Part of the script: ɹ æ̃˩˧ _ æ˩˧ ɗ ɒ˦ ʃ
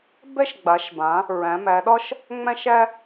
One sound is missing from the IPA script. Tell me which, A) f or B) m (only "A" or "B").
B